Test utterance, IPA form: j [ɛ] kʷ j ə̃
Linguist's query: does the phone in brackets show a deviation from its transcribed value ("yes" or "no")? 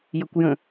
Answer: yes